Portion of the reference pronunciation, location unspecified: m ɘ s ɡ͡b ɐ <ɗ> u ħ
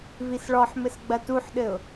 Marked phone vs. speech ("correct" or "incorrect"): incorrect